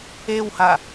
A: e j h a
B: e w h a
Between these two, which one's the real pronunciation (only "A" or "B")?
B